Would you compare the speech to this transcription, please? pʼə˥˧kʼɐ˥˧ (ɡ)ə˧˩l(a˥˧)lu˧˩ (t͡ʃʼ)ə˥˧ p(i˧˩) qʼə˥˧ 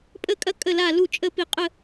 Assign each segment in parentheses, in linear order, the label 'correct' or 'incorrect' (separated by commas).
incorrect, incorrect, correct, correct